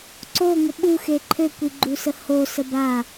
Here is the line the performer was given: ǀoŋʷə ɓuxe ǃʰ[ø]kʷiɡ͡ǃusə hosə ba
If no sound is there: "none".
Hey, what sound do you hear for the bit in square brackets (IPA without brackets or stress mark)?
ø